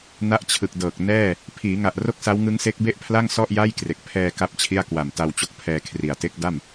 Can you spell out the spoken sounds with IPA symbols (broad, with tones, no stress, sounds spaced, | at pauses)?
n a˦˥ ʔ t͡ɕʰ ɯ˨˩ k̚ d ɤː˨˩ k̚ n ɛː˥˩ | pʰ iː˩˦ ŋ a˨˩ ʔ r o˥˩ k̚ s a˦˥ w ŋ ɯ˦˥ ŋ s e˦˥ k̚ b e˥˩ ʔ pʰ l a˥˩ ŋ s ɔ˥˩ ʔ j a˥˩ j k r e˨˩ k̚ pʰ ɛː˧ k a˥˩ p̚ t͡ɕʰ i˥˩ a̯ k w a˨˩ m t a˧ w t͡ɕ o˦˥ k̚ pʰ ɛː˧ kʰ r i˨˩ a̯ t e˦˥ k̚ d a˥˩ m